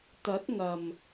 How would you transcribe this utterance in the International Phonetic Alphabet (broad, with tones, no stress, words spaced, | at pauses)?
t̪ɐ˨˥t̚ ŋɐ˨˩m